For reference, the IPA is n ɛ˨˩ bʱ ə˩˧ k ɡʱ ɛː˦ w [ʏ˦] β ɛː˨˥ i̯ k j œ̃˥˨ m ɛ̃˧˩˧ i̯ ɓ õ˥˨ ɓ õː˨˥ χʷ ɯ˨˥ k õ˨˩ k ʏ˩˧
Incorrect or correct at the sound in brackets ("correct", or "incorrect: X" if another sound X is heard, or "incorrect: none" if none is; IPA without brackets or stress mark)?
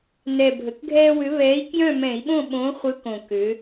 incorrect: ʏ˨˥